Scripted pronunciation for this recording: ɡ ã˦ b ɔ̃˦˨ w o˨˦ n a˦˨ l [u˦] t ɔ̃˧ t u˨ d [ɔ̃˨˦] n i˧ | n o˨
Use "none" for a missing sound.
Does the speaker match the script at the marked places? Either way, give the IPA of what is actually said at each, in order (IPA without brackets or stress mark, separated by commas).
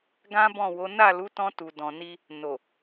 u˨˦, ɔ̃˨